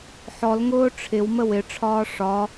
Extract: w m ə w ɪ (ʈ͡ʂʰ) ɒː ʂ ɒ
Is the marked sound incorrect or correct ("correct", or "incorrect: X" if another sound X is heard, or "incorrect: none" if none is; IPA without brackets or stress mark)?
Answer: correct